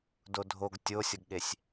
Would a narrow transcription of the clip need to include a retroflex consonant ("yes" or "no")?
no